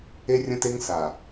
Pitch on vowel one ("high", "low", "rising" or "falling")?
high